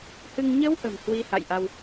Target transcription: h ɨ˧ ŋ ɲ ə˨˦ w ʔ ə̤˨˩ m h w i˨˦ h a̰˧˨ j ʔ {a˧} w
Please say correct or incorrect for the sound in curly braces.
correct